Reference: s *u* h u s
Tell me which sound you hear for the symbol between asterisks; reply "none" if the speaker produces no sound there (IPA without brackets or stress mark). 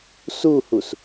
u